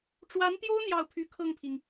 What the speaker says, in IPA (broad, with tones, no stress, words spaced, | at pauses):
ʈ͡ʂwa˧˥nt̪jo˥ʊ̯ n̪jɑ˥˩ʊ̯pʰy˧˥kʰɤ˥˩ŋpʰi˩ŋ